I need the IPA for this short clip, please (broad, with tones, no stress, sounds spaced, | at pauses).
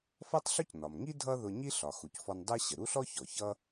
f ʌ˥ tˤ ɬ ʊ˥ c n ɒ˩ m ŋ i˥ dʱ ʌ˥ ð ʊ˧ ɲ i˥ ɬ ɒ˩ x u˩ c f ɔ˧ n dˤ ɜ˥ ɕ ə˩ ɾ u˥ ɬ ɔ˥ ç ɔ˩ ç ʌ˥